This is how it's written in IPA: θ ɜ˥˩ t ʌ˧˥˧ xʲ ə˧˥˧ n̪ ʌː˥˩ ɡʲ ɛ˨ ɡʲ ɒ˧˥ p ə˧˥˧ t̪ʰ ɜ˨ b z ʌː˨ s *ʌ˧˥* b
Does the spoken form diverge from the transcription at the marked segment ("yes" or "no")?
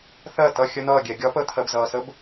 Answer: yes